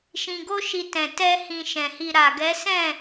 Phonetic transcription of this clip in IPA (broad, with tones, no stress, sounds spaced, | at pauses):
ʃ ĩ˧ ɡ o˦ ʃ i˧ t ɛ̃˨ t ɛ˧ h ĩ˧ ʃ ɛ̃˨ h i˧ ɾ a˨ ɡ ɛ˨˦ s ɛ̃˦˨